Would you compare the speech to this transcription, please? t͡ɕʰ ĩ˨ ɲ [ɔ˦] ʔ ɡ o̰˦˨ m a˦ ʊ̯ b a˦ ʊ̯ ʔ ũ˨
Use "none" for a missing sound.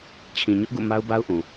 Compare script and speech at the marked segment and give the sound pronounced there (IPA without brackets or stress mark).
ʊ˦